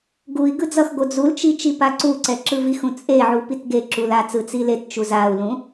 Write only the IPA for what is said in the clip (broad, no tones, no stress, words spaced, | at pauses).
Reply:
ɡui̯ ɡɯd͡zʌxɡo d͡zult͡ʃi t͡ʃipaǀuǀɛ ǁɯvixũ t͡sʼeʕu pitɡeǁul at͡sɯ t͡silett͡ʃu zau̯lũ